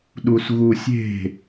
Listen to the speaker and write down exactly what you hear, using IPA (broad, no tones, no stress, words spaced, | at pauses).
ɗusɣusʲe̤